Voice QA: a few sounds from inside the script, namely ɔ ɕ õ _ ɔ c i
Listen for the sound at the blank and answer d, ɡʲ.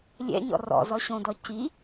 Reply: d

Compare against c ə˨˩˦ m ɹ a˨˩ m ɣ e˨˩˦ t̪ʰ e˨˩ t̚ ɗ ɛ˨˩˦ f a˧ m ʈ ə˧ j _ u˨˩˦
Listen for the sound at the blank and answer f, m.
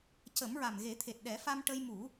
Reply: m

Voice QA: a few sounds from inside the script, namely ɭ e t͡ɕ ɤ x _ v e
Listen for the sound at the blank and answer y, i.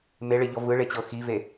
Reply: i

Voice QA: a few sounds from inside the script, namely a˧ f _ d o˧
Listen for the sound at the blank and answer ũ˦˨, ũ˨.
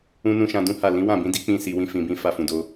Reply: ũ˨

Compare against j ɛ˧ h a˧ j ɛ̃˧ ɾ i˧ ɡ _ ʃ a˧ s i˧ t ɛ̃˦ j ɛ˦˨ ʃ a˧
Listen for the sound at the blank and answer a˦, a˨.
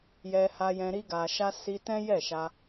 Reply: a˨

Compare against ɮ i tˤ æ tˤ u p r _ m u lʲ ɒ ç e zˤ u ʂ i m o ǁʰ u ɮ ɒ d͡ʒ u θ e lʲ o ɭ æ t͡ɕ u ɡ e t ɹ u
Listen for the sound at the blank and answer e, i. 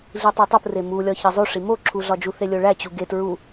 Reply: e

